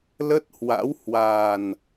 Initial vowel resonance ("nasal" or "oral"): oral